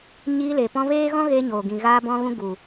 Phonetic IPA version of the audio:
ɲ iː˧ l e˨ p ɔ̃˧ v eː˦ ɣ ɔ̃˦ ɣ eː˧ ɲ oː˨ ɡ ĩ˨ ɣ aː˧ b ɔ̃˧ ɣ ũ˧ ɡ u˨

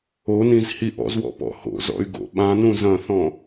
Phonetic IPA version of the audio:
o n ĩ z h i ʔ ɔ̰ z w ɔ̰ p ɔ̰ h o̰ z ɔ̰ y̯ ɡ o̰ ɓ ã n ũ z ɐ̃ θ ɔ̃

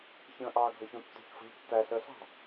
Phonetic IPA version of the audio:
ç ə̃ː ʔ ɑː ɡʱ ʌ ç ũ tː ṳ ç f ə̤ ʎ tː æ ɬ ə ɬ ɑ̤

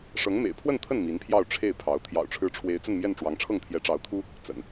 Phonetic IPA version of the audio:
ʂ ɤ˧˥ ŋ m ḛ˨˩ ɪ̯ pʰ w ə˥˧ n t̪ʰ ə˥˩ n m i˧˥ n pʰ j ɑ˥˧ ʊ̯ ʈ͡ʂʰ e˥˩ ɪ̯ pʰ ɑ˧˥ ʊ̯ t̪ʰ j ɑ̰˨˩ ʊ̯ ʈ͡ʂʰ ɻ̩˧˥ ʈ͡ʂʰ w e˧˥ ɪ̯ t͡s ə˥˧ n m j ɛ˥˩ n ʈ͡ʂ w ɑ˧˥ ŋ ʈ͡ʂʰ ɤ˥˩ ŋ t̪ʰ j ɛ˧˥ ʈ͡ʂ ɑ˧˥ ʊ̯ t̪ʰ u˥ | t͡s ə̰˨˩˦ n

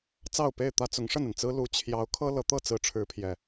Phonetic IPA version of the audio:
t͡s ɑ˥˨ ʊ̯ p e˥˨ ɪ̯ t̪ ä˦ t͡s ʊ˨˦ ŋ ʂ ə˥˨ n ə˩ n t͡s ɹ̩˦ l u˨˦ t͡ɕʰ j ɑ˨˦ ʊ̯ kʰ ɤ˦ l ɤ˨˦ t̪ ɤ˥˨ t͡s ɹ̩˨˦ ʈ͡ʂʰ ɻ̩˨˦ pʰ j ɛ˨˩

